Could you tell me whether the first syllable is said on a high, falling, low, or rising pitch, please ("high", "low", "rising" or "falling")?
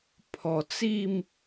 low